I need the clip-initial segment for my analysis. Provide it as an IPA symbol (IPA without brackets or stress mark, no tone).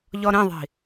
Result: ʎ